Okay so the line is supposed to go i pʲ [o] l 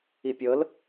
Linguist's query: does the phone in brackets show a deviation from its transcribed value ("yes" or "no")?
yes